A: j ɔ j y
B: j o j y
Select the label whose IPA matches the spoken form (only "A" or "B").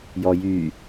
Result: A